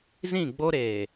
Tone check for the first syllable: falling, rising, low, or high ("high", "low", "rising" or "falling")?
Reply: falling